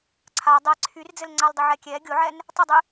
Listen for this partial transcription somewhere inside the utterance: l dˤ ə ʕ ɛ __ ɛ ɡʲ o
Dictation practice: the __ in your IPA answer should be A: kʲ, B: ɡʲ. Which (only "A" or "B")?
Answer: A